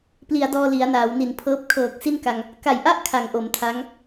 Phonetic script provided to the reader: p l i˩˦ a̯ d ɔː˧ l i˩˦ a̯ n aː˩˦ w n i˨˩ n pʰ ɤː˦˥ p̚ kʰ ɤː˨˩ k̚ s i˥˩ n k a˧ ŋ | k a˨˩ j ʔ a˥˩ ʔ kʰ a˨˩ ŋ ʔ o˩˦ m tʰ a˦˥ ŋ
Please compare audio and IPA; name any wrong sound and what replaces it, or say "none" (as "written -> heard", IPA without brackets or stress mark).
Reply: none